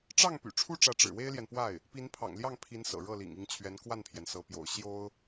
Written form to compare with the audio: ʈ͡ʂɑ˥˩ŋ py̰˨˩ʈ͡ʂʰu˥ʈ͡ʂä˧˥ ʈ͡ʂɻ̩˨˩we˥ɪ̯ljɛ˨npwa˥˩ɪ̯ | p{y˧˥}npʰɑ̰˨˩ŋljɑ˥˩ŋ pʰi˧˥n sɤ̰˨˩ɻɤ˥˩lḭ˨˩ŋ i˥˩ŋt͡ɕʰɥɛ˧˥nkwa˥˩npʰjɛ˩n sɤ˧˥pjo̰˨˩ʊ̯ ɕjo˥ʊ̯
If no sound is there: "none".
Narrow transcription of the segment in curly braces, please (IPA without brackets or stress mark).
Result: i˧˥